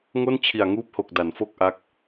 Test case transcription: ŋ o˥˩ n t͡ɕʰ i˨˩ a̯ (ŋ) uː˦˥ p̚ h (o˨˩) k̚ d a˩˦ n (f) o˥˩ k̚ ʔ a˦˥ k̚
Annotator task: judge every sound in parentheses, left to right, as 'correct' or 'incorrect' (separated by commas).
correct, correct, correct